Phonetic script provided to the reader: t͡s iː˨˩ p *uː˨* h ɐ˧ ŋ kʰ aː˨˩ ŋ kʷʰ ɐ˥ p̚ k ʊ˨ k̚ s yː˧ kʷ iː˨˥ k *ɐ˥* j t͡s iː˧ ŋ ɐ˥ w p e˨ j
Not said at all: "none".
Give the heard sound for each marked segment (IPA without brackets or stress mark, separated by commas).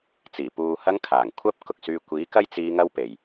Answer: uː˨, ɐ˥